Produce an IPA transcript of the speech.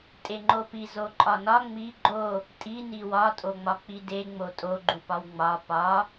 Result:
tʼeŋ͡ǃopi zoǃʼɒnɒ ŋ͡mi ɡ͡ǃo | tʼi niwɒ tʼoŋ͡mɒk͡pide ŋ͡motʼo ɡ͡ǃupɒwŋ͡mɒ pɒ

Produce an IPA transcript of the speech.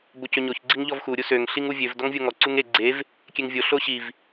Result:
bocøɲoç ɡ͡ǀiŋʎɔvxu ɾʲusøŋ ɬiŋuvʲøv dɔŋvʲoŋɔ ǀuŋe ɡ͡ǀev | kʲeŋvʲo ɬoɕiv

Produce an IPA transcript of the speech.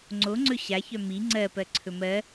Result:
ŋ͡ǀo ŋ͡ǀɵɕa çœmi ŋ͡ǀɜ pɜǀʰɵmɜ

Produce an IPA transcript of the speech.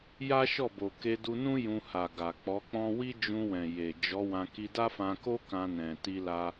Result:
ja˦ʃɔ˦˨bo˨ ke˧du˧nũ˦ jũ˧ha˨ ɡa˨k͡pɔ˨˦k͡pɔ̃˦ wi˦d͡ʒũ˧wɛ̃˨ je˨ d͡ʒɔ˨˦wã˧ ki˧da˦fã˧ko˦ kã˧nɛ̃˨ ti˧la˧

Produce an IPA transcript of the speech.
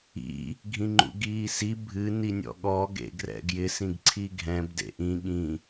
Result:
ḭ | ɡʱĩŋ͡ǃṵɡiːsi bʱɨ ninʲɔ̰ɠɔ ɡḛɡrɛ̰ɡjɪ sĩɡǀʰiɡʱɛ̃b dḛʔĩ ɠĩ

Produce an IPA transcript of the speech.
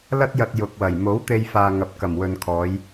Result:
lɐ˥t̚jɐ˧t̚ jʊ˨k̚ wɐ˨˩j mo˨˥wt̪e˧jfaː˨ ŋɐ˨p̚kɐ˨˩mwɵ˨nkʰɔː˨˧j

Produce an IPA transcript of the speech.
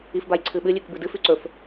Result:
ifbajǀʰɨɓɨ lʲʉkbɨdɨ fʉǀɵf

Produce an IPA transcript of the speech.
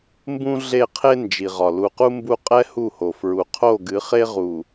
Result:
mbũ˦ ɮe˦˨qʰe˦ nd͡ʒi˨ʁɒ˨ lu˨qu˦ mbu˦ qʼɛ˦ hu˦˨ho˨ fɹu˨ qʰo˦˨ɡɨ˨˦ χe˦ʁu˨

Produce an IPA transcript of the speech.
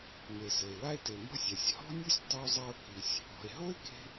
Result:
me˩sɘ˩e̯wa˥e̯te˩ mɔ̤˥sʲa˩sʲ hɔ̤˥nʲu˥sʲ tˤi˧o̯zˤa˧o̯ ki˩sʲ | ɔ̤˩e̯ ɦo˥e̯ke̤˧

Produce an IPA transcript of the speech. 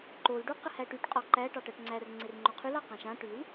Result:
ǃol ɖuqəhæʈyʈ qʼɔǃæ ʈɑʈæʈŋ͡ǀær ŋ͡ǀɪrŋ͡ǃoqʰyl ɑqãʃã ʈyl

